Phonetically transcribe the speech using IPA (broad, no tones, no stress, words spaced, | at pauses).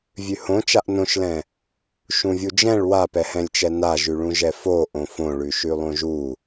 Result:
vʲʉhõt͡ʃaʔ nõʃlɛ̃ | ʃũvʲud͡ʒɛ̃ɭ wapɛhɛ̃lʲt͡ʃɛ naʒʉɭũʒɛ fo ʔõfõɭʉ ʃʉlˠõʒu